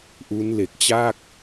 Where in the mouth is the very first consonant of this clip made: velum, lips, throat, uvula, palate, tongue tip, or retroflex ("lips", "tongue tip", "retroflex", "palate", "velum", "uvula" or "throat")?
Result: throat